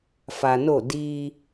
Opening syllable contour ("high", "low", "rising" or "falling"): low